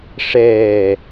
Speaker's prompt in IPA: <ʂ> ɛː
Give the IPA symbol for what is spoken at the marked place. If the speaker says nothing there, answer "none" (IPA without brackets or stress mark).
ʂ